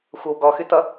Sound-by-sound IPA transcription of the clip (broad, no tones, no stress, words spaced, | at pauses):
xʷʌwɡɔxytʌ